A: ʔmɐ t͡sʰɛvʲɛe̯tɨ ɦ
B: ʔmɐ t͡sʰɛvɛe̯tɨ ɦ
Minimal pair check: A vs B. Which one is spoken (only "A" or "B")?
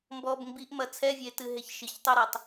A